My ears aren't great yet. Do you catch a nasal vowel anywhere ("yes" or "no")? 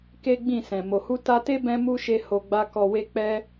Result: yes